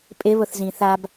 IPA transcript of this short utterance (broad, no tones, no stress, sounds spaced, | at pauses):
pʼ ɪ β ʊ θ z ĩ θ a b